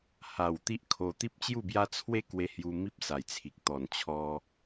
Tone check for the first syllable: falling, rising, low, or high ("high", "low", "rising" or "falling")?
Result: low